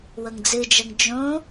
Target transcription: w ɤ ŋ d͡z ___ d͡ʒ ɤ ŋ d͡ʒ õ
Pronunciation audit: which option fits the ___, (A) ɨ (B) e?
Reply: A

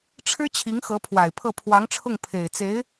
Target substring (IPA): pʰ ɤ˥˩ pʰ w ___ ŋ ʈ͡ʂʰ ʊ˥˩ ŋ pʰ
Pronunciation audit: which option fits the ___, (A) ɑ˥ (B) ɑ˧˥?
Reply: B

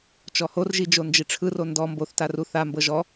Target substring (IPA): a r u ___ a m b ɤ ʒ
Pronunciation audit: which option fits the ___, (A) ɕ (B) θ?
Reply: B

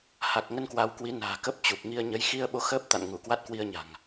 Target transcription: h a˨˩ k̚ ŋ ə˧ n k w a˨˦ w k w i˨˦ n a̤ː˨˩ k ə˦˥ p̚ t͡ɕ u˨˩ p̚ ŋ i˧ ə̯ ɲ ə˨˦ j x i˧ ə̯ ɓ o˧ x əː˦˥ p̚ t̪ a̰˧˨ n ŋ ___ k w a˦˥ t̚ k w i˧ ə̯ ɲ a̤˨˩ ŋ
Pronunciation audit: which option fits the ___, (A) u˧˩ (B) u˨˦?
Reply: A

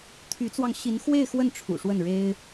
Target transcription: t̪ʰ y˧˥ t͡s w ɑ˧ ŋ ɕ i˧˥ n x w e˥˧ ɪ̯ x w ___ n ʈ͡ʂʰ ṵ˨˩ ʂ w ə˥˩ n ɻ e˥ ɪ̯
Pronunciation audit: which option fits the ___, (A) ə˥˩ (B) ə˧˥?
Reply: A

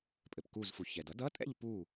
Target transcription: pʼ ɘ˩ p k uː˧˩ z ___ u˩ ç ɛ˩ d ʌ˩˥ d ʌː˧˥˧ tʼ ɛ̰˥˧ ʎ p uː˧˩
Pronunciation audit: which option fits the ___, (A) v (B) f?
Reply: B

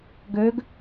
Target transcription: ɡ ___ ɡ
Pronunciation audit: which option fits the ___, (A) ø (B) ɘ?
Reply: A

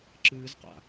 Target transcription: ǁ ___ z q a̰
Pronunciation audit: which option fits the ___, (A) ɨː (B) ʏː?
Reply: A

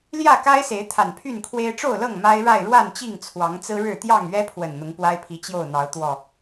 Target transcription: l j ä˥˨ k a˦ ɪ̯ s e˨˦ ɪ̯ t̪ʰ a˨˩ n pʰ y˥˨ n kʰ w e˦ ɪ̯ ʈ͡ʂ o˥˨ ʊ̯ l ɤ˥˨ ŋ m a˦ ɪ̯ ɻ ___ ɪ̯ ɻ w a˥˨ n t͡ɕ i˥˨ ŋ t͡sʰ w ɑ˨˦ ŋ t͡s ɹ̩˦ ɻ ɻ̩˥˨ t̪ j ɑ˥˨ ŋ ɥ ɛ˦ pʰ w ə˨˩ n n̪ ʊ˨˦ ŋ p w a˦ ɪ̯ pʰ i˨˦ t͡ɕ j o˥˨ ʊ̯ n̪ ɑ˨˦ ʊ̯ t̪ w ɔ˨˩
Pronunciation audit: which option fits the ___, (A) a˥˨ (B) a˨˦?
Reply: A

